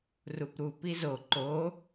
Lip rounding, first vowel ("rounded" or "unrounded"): rounded